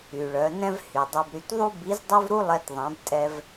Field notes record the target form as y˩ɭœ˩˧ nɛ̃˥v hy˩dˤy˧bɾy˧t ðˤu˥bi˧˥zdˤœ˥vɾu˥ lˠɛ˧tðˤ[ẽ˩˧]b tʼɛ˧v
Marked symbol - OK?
no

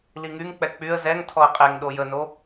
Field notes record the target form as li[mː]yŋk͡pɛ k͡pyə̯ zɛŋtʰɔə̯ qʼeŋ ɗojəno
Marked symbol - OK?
no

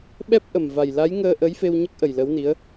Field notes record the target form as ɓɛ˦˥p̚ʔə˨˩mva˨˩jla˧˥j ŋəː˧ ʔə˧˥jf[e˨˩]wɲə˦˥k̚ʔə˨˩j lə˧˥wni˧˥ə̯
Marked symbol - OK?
no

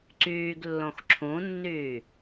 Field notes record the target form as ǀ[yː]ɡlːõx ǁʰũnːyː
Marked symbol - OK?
yes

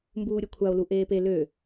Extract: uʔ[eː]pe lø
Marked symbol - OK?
yes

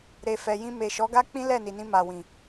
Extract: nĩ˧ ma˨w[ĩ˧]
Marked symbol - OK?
no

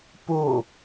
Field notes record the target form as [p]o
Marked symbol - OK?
yes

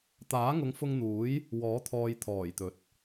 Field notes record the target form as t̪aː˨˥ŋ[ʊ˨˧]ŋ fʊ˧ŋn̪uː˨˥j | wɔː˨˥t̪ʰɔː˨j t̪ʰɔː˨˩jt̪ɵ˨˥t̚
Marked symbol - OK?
yes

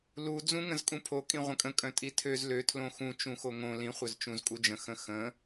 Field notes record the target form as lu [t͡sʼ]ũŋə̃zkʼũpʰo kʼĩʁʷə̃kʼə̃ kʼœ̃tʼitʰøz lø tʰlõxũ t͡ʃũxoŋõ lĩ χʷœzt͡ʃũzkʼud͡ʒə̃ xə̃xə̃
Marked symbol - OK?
no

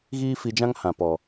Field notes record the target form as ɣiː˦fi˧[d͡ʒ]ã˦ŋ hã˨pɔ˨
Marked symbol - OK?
yes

